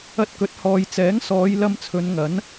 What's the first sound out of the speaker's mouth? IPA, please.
ɐ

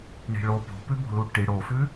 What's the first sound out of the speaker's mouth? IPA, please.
ɳ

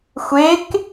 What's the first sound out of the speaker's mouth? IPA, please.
xʷ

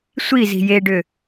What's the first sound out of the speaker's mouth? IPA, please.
sʷ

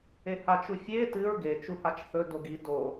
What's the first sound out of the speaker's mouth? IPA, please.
e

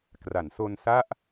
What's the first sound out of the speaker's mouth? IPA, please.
k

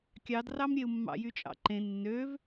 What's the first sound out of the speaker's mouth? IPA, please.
kʲ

